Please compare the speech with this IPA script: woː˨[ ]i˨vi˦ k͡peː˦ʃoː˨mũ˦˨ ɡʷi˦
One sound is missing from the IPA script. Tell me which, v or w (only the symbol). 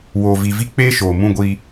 v